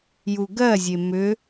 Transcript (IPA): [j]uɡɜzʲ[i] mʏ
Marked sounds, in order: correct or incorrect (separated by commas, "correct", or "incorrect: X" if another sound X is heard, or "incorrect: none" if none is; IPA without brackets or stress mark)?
correct, incorrect: e